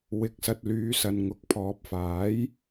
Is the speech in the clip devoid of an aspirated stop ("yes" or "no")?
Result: no